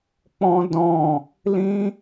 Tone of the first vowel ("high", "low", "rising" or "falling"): high